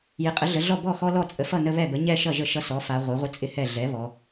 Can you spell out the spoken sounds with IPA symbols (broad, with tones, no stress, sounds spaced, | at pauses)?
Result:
j ɪ˩˥ qʼ ə˩˥ ɮ ə˩˧ ɮ ɔ˥˩ b ɔ˥˩ x ɔ˦ l ɔ˥˩ t͡sʼ ə˩˥ f ʌ˥˩ n ə˦ β ɛ˥˩ b ə˩˥ ɲ ɛ˥˩ ʃ ʌ˥˩ ʒ ə˥˩ ʃ ʌ˦ s ɔ˩˥ f a˩˧ ʁʷ ɛ˩˥ ʁʷ ə˦ t͡sʼ ɪ˦ h ɛ˥˩ ɮ ɛ˩˥ β ɔ˩˧